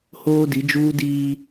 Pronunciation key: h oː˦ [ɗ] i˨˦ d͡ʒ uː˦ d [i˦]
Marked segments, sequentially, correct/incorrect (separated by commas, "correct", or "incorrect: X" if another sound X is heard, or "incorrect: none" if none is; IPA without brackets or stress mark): incorrect: d, incorrect: iː˦